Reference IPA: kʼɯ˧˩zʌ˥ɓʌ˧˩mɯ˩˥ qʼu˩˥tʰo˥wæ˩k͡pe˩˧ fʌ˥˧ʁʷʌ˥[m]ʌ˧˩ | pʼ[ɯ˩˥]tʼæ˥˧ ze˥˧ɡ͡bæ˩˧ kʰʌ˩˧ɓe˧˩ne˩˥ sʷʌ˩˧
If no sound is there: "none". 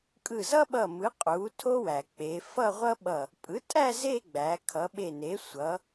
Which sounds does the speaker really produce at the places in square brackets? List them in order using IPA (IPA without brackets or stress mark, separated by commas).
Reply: ɓ, ɯ˩˥